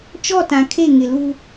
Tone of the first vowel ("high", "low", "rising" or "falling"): falling